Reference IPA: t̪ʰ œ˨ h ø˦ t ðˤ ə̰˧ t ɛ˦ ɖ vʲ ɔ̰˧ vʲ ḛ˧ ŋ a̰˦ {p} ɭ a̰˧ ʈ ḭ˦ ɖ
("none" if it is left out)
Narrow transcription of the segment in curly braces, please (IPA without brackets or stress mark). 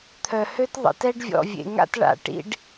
t